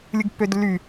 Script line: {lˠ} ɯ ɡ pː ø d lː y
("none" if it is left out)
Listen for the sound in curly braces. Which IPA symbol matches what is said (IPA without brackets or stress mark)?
lʲ